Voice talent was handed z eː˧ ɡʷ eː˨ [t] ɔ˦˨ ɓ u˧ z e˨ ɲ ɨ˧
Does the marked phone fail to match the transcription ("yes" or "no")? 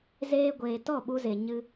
no